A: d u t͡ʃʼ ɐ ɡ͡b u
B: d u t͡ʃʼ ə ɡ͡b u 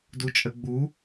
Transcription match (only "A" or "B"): B